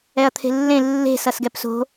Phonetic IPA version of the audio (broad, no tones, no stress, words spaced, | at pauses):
ɛɐ̯t̪ʰe̤lːẽ lːe̤ sʌsɡɛpso̤